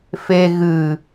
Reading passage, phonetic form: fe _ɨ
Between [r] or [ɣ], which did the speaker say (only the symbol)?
ɣ